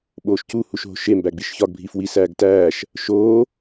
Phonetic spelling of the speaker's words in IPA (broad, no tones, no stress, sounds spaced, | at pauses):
ɓ oː ʃ c u h u ʃ ɦ o̤ ʃ e m b æ ɡ͡b i ʃ ç ɒ ɡ bʱ i f w i s æː ɡ t æː ʃ | ʃ oː